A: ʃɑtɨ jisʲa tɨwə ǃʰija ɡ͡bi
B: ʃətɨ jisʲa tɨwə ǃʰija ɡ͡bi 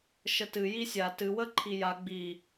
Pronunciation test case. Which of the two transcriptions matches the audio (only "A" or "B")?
B